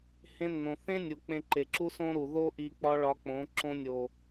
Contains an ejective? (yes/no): no